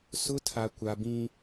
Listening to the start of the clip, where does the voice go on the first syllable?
high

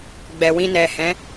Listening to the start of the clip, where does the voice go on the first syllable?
low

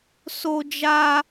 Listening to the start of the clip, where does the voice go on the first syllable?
high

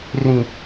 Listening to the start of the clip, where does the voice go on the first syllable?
low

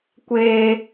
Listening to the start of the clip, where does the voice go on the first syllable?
high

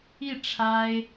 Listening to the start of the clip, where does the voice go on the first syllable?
falling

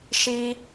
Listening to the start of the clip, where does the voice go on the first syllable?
high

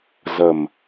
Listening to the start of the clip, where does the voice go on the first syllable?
low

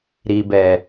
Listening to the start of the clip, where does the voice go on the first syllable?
low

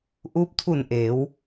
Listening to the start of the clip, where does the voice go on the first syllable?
rising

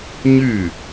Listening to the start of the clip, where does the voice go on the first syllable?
falling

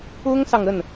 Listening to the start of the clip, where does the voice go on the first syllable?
high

